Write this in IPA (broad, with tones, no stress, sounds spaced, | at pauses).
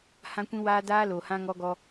h ã˦ kʷ ĩ˦ w aː˦ d aː˦ l o˨ h ã˦ ŋ ɔ˦ ɡ ɔ˦